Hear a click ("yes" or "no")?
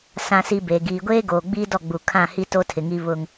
no